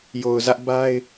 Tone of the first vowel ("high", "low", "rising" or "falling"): low